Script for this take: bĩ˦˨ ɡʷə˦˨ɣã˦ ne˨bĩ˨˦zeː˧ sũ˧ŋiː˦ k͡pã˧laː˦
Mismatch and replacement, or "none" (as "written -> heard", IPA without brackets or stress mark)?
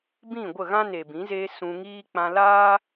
none